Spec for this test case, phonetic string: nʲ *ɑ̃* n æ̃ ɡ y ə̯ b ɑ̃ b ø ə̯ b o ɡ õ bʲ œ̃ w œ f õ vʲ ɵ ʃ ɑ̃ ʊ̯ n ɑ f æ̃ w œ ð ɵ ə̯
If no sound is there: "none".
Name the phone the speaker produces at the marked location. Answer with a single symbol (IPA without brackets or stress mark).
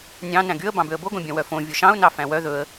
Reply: ɑ̃